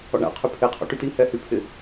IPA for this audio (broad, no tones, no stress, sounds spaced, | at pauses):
ɔ̰ ɳ a̰ qʰ y pʰ e qʰ ɔ̰ ʈ y t i h ɛ h y pʰ ɪ